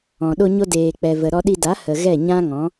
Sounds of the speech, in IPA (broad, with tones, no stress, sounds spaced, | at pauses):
ɔ̃˨ ɗ o˧ ɲ o˧ d eː˨ k͡p ɛ˨ v ə˨ ɾ ɔ˧ ɗ i˧ d a˨˦ h ə˨ ɣ ɛ˦˨ ɲ ã˦ ŋ ɔ̃˨˦